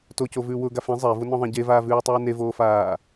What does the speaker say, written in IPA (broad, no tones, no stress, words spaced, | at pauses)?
tocovʉ wʊ ɡafẽ zˤɛvʊnɔ̃ðˤẽ ɟevaːvʉːtˤʉː nevoːfaː